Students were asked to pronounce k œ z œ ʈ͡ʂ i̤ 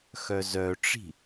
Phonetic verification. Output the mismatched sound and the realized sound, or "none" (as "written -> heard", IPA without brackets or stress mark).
k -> x